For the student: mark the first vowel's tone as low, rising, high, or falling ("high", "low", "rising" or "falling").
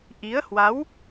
rising